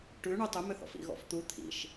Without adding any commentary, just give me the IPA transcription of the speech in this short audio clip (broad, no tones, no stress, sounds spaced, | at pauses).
ʈ ʉ ɳ ʉ tˤ ʏ m ʏ θ ɔ̰ f ḭ ɣ ɔ̰ f t̪ u t̪ʰ ḭ ʃ